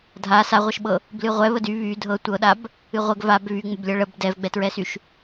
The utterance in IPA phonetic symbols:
dʱ a s a ʁʷ ɤ ʃ ɓ ɤ | b l ɨ ʁʷ ɛ β ə d y β y dʱ ɤ tʷ ɤ ɗ a b | ɨ ʁʷ ə ɡ v a b β y ŋ͡m ə b lʲ ɤ ɭ ə b d ɛ v ɡ͡b ɛ t ɹ ɛ s y ʃ

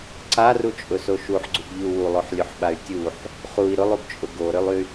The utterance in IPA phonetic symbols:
ǀ a r u t͡ʃʼ ʊ s o ʃ u ħ ɡ͡ǀ u ɡ ʎ u w u lˠ o ħ lʲ u ħ ɓ a y̯ tʲ u ħ | χ u i̯ ɾ ʊ lˠ u ɡ t͡ʃʼ ʊ ɡ o ɾ ø lˠ y

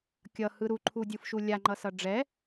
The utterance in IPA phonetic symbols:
kʲ ʌ h ɯ ɾ u ǃʰ u dʲ ɯ f ʃ u lʲ a ŋ͡ǃ ʌ s ʌ ɖ͡ʐ ɛ

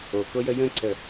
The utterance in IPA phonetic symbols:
o k o j ə j ə̃ ǀ ə

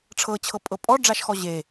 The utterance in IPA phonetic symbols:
ʈ͡ʂʰ ɤ t͡ɕʰ ɤ pʼ ɤ pʼ ɔ ɖ͡ʐ a ʃ x ɔ ʑ e

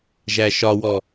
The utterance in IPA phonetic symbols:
ʒ æ ʃ ɒ w ɔ

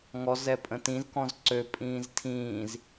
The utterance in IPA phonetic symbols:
ŋ ɔ z ɛ pʼ ə̃ t ĩ z k ɔ̃ z ǀ ø pʼ ĩː z tʰ ĩː z

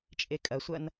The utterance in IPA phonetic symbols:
t͡ʃʼ e kʼ ɐ sʷ ɐ n

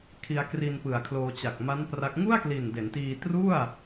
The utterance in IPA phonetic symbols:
kʰ i˧ a̯ k r i˧ n p ɯ˨˩ a̯ kʰ l oː˧ t͡ɕ a˨˩ k̚ m a˦˥ n p r a˦˥ k̚ ŋ u˥˩ a̯ k l i˨˩ n d e˩˦ n t iː˧ t r u˥˩ a̯

